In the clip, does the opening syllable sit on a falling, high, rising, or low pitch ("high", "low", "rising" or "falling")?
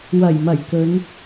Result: low